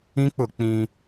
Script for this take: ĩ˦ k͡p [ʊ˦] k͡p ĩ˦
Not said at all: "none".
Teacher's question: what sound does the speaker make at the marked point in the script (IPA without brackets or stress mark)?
ʊ˦˨